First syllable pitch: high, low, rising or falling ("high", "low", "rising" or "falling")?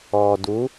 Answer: low